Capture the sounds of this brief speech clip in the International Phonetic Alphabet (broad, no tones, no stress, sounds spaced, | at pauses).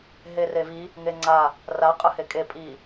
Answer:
ɦ e r e v i | ŋ e ŋ͡ǀ a | r a qʼ ɯ h e kʼ e pʼ i